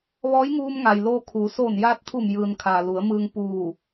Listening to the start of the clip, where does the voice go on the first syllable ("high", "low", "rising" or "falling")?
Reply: rising